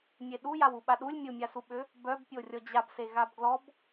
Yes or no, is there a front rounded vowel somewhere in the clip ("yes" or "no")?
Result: yes